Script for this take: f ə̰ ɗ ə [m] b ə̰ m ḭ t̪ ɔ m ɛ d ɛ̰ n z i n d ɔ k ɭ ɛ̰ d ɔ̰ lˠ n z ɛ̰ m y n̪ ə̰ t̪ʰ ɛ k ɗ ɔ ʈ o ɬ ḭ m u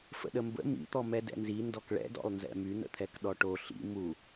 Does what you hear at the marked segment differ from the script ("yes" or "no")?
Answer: no